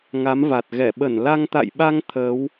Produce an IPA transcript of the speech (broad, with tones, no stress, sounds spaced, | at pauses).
ŋ a˨˦ m v a˨˩ t̚ ɣ ɛ˧˩ ɓ ə˧˩ n l a˧ ŋ t̪ a̰˧˨ j ɓ a˧ ŋ t̪ʰ əː˨˦ w